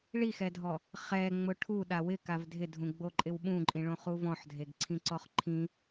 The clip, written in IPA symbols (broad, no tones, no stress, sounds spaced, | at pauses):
ɭ i x ɛ dʱ ɔ | χ ɛ ŋ͡m ʊ ʈʰ u ɗ a w ɪ k a v dʱ ɪ dʱ ũ ɡ͡b o ǃʼ ɪ w ɓ ũ ǃʼ ĩ ɭ õ χ u v ɔ̃ ħ dʱ e ɡ ǀʰ ĩ ǀ ɔ χ ǃʰ ĩ